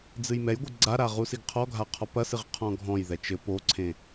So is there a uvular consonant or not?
yes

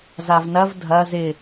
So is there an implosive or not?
no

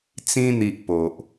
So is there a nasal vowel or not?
yes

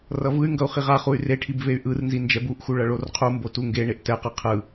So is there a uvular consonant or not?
yes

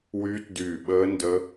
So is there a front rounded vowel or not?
yes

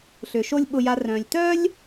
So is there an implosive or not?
yes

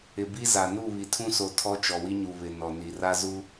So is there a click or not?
no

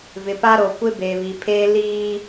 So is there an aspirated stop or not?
yes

